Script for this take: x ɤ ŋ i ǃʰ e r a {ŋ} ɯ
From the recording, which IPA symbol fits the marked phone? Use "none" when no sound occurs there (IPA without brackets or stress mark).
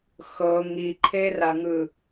ŋ